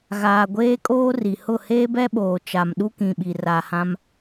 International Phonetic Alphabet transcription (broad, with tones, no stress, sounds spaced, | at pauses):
ɣ aː˨ ɡʷ eː˦ kʼ oː˦ r i˨ h ʊ˦˨ h eː˦ b ɛ˦ ɓ oː˨ t͡ʃ a˨ m ɗ u˦ k ĩ˨ ɓ i˨ r a˨ h ã˦ m